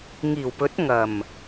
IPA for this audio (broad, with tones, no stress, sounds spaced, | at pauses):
ŋ iː˨˩ w p ɵ˨˥ t̚ ŋ ɐ˨˩ m